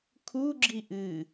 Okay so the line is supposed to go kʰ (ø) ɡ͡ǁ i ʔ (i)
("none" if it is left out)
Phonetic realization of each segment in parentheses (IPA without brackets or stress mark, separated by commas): u, ɨ